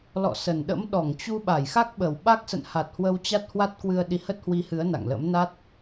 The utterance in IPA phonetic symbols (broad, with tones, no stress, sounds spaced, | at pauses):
l ɔ̰˧˨ s ə˨˩ n ɗ ə̰˧˥ m ɗ ɔ˧˩ ŋ t͡ɕ u˧ ɓ a˧˩ j x a˦˥ k̚ ɓ ə˨˩ w ɓ a˦˥ k̚ s ə̰˧˨ n h a˨˩ t̚ h w ə˧ w t͡ɕ a˦˥ t̚ h w a˦˥ t̚ k w ɨ˧ ə̯ ɗ i˨˦ h ə˦˥ t̚ h w i˧ h ɨ˨˦ ə̯ n a̰˧˨ ŋ l ə̰˧˥ m n a˦˥ t̚